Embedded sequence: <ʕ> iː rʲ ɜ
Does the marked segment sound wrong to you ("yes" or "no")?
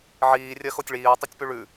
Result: no